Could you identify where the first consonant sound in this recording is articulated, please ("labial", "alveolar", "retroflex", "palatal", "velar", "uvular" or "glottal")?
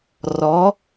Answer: alveolar